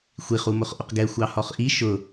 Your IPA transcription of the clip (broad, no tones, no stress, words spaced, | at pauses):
xʷiχ umʊχʔʊqɡɛ xʷɑhɔχʔi ʃʊ